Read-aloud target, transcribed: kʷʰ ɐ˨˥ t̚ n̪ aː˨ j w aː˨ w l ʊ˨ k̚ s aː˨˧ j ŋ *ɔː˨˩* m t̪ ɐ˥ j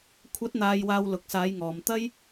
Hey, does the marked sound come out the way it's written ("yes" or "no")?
no